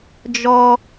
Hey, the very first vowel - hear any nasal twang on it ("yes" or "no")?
no